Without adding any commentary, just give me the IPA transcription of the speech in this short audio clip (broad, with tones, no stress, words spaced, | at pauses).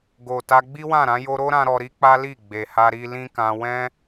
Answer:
ɡo˨ta˧ ɡ͡bi˦wã˦˨ɾã˧ jo˧ɾo˦ɾã˧ ɾɔ˧ɾi˦k͡pa˦li˦˨ ɡ͡be˨ha˧ ɾi˧lĩ˦kã˧ wɛ̃˦